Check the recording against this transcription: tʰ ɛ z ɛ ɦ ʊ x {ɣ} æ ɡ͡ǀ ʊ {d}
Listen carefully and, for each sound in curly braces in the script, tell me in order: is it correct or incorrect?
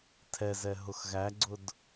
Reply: correct, correct

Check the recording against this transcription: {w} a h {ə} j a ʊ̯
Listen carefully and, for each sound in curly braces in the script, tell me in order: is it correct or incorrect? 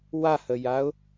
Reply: correct, correct

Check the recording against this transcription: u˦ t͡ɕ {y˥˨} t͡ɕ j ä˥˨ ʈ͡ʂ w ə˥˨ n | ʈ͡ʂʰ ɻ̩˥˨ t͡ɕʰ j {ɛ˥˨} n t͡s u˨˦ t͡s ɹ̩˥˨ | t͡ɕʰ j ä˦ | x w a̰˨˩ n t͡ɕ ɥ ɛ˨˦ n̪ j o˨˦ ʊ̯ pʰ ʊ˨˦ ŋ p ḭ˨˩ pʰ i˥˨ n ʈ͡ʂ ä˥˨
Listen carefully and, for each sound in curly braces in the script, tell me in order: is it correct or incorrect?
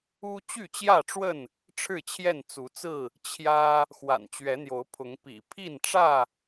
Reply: correct, correct

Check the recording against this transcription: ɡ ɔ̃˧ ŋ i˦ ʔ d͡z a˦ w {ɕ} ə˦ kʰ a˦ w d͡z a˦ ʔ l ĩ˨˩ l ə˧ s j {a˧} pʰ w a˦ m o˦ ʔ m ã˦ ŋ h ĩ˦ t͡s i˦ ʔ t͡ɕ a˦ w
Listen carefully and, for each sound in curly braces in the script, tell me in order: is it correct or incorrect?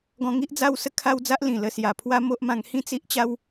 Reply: incorrect: s, incorrect: a˨˩

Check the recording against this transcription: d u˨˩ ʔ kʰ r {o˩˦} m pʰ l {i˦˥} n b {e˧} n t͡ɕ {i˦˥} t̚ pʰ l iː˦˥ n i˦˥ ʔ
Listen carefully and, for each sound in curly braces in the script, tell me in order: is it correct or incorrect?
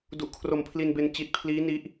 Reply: incorrect: o˨˩, incorrect: i˧, correct, incorrect: i˨˩

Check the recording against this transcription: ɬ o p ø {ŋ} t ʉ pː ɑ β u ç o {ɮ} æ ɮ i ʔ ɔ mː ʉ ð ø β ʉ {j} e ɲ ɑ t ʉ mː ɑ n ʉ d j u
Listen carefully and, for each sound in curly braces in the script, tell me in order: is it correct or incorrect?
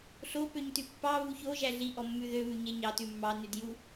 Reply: incorrect: ɲ, incorrect: ʒ, incorrect: ɲ

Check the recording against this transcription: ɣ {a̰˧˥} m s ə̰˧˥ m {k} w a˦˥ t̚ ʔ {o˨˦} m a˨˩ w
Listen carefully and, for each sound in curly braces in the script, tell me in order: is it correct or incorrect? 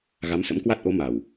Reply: incorrect: a˨˦, correct, correct

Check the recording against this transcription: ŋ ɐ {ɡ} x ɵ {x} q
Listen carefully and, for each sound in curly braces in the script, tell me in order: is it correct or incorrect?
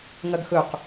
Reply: correct, incorrect: none

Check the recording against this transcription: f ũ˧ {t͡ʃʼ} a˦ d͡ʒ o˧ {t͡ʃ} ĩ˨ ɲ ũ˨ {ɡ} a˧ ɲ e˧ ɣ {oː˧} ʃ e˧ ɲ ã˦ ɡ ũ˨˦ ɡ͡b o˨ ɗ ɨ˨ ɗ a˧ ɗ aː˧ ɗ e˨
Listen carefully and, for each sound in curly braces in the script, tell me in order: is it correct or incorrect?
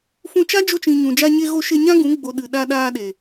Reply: incorrect: t͡ʃ, correct, incorrect: d͡ʒ, incorrect: o˧

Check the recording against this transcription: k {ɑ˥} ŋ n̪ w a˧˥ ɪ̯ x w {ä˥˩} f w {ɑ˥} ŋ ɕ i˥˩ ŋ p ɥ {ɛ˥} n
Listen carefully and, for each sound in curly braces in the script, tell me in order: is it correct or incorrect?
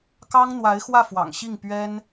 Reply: correct, correct, incorrect: ɑ̰˨˩, correct

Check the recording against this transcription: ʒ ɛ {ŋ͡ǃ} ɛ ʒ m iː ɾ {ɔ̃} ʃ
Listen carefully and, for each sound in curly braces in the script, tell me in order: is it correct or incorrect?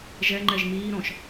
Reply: correct, correct

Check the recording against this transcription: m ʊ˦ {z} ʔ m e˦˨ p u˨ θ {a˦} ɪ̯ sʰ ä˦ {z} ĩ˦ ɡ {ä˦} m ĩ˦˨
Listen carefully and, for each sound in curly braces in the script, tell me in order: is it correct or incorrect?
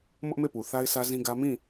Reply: incorrect: none, correct, correct, correct

